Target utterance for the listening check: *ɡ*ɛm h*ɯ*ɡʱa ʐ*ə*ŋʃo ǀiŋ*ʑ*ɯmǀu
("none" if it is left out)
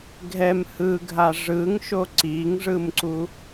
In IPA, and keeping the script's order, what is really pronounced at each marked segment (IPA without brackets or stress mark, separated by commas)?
ɡʱ, ɯ, ɯ, ʐ